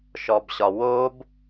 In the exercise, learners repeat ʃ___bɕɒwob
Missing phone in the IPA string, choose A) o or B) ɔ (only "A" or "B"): B